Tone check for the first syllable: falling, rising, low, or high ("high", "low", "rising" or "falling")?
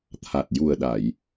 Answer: low